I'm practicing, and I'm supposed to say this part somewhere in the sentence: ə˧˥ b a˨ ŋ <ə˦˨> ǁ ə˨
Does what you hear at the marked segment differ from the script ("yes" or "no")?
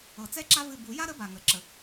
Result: yes